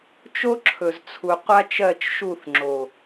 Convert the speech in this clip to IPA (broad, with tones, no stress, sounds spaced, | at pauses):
t͡ʃ o˦ ǁʰ ɵ˨ z t͡sʰ u˨ qʷ a˦ t͡ʃ ɜ˦˨ t͡ʃ ʃ u˦˨ θ ŋ͡ǁ o˨